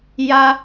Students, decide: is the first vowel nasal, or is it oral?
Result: oral